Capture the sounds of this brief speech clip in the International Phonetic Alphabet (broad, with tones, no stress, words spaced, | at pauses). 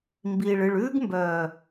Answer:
mbiː˨ɭɨ˨ɭ ʉː˦ɡmbœː˨